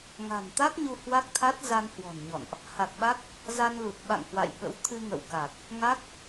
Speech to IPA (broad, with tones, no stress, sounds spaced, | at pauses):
ŋ a̤˨˩ n t̪ a˦˥ k̚ ɲ u˧ h w a˦˥ k̚ t̪ʰ a˦˥ t̚ z a˧ n h w ɔ̤˨˩ n ɲ ɔ̰˧˨ n ʔ | h a˨˩ k̚ ɓ a˦˥ k̚ | z a˧ n l u˨˩ t̚ ɓ a̰˧˨ ŋ h w a̰˧˨ j ɓ ə̰˧˥ w t̪ʰ ɨ˧ ŋ ə̰˧˨ w k a˨˩ k̚ | ŋ a˦˥ k̚